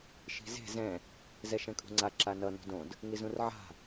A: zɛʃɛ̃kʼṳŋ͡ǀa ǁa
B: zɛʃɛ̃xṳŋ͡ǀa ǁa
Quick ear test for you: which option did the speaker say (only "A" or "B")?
A